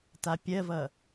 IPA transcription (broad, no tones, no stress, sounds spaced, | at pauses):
t a pʲ ɜ v ʌ